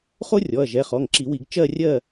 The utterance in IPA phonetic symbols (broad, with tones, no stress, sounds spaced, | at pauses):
χ o˥ rʲ ɔ˩˧˩ ɐ̯ ʒ ɛ˩˧˩ χ ɔ˩˧˩ ŋ ǁ i˨˩˦ w i˨˩˦ ɡ t͡ʃ ɜ˥˨ rʲ ɜ˥˨